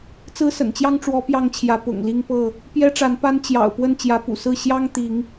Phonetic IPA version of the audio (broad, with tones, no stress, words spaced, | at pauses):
t͡sɹ̩˦sə̰˨˩nt͡ɕjɑ˦ŋʈ͡ʂwɔ˨˦ pjɑ˦ŋt͡ɕʰjä˨˦ pʊ̰˨˩ŋli˦ŋpɤ˥˨ | pjɛ˦ʈ͡ʂa˨˦npa˦n t͡ɕjɑ̰˨˩ʊ̯pwə˥˨n t͡ɕjä˨˦pṵ˨˩sɹ̩˥˨ ɕjɑ˦ŋt̪i˨˦ŋ